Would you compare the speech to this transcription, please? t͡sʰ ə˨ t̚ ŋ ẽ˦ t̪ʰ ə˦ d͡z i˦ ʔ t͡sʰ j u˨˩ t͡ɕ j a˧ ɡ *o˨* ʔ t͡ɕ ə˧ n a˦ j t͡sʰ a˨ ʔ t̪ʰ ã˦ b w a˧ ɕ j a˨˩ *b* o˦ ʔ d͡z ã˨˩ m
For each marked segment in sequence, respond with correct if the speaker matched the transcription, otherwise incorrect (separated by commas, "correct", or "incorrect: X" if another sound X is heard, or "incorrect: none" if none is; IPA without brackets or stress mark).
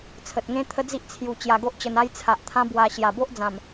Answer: incorrect: o˦, correct